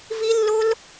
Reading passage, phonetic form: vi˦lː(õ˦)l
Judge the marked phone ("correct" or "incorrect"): incorrect